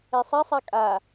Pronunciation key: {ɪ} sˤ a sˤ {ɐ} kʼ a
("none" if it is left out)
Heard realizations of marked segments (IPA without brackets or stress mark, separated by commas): ɛ, a